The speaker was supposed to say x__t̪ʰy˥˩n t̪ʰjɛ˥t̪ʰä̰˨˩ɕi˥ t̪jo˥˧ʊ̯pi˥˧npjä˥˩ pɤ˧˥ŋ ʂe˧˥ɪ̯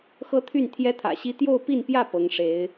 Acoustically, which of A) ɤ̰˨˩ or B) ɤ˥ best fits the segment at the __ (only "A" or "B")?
B